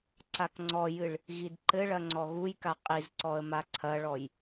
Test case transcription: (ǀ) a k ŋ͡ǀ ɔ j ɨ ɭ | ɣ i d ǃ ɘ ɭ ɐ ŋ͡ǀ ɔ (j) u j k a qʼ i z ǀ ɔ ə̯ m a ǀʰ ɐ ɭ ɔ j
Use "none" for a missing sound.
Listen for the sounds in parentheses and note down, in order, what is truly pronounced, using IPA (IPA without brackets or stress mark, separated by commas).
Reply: ǀ, ɣ